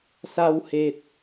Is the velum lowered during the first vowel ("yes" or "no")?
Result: no